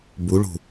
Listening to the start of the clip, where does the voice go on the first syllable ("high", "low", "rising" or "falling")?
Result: rising